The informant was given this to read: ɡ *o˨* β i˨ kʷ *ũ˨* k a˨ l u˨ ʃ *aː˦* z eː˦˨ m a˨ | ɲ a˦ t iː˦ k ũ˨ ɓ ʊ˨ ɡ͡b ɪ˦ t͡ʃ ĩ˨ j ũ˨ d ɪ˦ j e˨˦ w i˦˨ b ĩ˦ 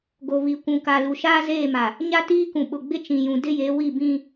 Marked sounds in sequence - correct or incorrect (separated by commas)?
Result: correct, correct, correct